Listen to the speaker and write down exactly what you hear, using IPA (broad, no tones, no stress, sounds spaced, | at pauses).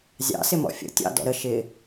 zʲ ɑ̰ s ɪ m ɔ̰ fʲ ə̰ tʲ ɑ̰ d ɔ̰ ɾ ə ʃ ɪ